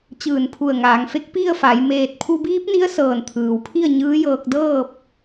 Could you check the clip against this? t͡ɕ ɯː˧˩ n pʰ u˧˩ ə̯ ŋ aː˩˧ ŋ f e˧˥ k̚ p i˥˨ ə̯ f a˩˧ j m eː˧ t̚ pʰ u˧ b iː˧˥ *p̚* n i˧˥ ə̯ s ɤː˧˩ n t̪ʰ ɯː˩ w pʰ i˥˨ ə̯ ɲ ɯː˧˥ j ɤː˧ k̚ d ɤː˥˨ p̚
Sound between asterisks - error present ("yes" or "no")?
no